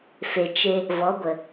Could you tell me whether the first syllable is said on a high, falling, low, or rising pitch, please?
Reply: low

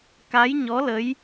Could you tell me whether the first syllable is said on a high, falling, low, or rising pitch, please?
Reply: rising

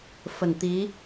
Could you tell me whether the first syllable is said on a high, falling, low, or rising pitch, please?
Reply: low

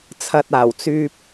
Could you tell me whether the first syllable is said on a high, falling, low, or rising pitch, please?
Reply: low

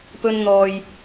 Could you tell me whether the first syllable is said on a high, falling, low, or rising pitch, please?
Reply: high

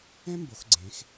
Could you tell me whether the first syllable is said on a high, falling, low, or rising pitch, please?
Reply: high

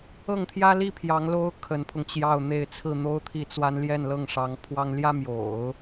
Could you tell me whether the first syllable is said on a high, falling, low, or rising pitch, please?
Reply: falling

